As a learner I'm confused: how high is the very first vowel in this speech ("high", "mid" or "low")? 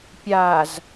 low